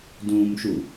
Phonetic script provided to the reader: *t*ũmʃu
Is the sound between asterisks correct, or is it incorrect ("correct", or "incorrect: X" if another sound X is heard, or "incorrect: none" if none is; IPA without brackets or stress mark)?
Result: incorrect: d